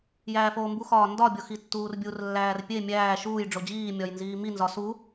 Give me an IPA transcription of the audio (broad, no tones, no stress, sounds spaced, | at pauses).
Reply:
j æː f oː m b u x ɒː n d ɒ bʲ o x i tː uː r bʲ u r lː æː r pʲ e mʲ æː ʃ uː j ɖ͡ʐ o d͡ʑ iː mʲ ɒ j n z iː m i n z ɒ s u